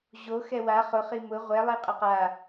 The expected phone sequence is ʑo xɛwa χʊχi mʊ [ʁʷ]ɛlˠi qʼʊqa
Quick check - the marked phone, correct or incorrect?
correct